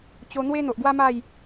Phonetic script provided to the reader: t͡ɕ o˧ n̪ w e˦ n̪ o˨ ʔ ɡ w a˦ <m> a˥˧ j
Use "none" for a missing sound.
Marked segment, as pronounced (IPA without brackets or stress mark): m